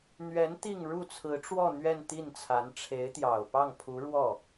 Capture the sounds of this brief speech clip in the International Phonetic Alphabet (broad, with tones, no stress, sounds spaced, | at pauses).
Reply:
n̪ ɥ ɛ˧˥ n t̪ i˥˧ ŋ ɻ u˥˩ t͡sʰ ɹ̩˧˥ ʈ͡ʂ w ɔ˥˧ n̪ ɥ ɛ˥˧ n t̪ i˥˩ n t͡sʰ a˧˥ n ʈ͡ʂʰ e˧˥ ɪ̯ t̪ j ɑ˨˩ ʊ̯ p ɑ˥˩ ŋ pʰ u˧˥ ɻ w ɔ˥˩